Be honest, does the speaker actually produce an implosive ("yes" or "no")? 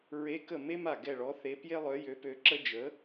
no